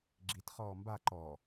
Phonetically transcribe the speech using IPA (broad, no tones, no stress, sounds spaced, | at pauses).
ɡ͡ǁ i t χ ɔː m b a ǃ ɔ